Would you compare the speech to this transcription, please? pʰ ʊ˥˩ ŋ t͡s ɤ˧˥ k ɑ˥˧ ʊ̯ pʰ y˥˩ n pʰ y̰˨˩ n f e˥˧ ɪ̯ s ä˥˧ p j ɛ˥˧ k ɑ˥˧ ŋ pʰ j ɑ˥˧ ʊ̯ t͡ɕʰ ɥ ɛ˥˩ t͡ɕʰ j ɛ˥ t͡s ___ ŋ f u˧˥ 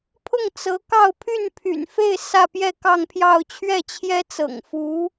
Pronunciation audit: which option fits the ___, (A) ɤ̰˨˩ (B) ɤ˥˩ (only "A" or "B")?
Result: A